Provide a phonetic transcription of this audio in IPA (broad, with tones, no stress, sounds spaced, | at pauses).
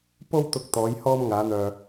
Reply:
p o˧ w t̪ ʊ˨ k̚ t̪ ɔː˨˧ j h ɔː˧ m ŋ aː˨˧ n̪ œː˨